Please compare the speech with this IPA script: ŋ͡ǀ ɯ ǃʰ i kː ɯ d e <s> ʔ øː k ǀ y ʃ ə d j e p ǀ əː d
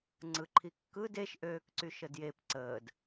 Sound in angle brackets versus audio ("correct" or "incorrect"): incorrect